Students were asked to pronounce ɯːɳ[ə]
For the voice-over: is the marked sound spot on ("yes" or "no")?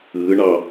no